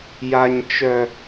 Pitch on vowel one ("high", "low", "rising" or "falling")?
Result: high